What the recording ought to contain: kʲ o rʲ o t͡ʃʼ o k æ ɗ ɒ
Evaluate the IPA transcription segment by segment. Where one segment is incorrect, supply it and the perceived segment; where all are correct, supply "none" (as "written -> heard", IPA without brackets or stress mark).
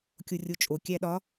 k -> kʲ